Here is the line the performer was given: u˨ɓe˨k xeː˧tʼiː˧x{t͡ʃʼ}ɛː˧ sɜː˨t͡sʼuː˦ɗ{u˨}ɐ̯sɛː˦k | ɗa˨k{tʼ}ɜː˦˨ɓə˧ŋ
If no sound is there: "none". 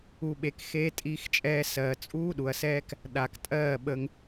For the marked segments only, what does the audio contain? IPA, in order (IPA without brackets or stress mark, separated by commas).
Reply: t͡ʃʼ, u˨, tʼ